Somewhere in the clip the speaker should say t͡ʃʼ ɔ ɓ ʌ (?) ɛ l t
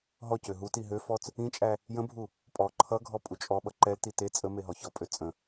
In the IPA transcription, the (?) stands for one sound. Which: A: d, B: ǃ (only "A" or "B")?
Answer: B